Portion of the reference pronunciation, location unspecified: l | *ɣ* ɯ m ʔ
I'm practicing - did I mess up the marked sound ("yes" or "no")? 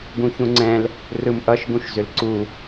yes